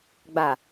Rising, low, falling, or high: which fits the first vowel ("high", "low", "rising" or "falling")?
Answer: low